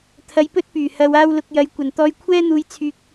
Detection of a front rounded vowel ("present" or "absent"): present